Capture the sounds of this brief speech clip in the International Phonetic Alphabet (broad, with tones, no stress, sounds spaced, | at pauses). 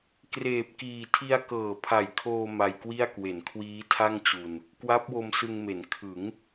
k r eː˨˩ p̚ k iː˨˩ tʰ i˧ a̯ k ɤː˨˩ pʰ a˨˩ j kʰ oː˧ m a˧ j k w i˥˩ a̯ k w e˩˦ n kʰ w iː˦˥ tʰ a˥˩ ŋ t͡ɕ u˧ n | k w a˦˥ p̚ w o˧ m s ɯ˧ ŋ m e˩˦ n kʰ ɯ˩˦ ŋ